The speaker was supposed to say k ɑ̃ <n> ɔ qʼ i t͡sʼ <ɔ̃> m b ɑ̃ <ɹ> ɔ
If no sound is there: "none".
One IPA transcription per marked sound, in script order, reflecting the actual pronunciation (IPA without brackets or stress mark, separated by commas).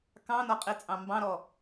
n, ɑ̃, ɾ